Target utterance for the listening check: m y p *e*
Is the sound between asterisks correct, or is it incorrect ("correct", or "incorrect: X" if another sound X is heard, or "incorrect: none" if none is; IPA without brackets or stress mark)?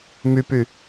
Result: incorrect: y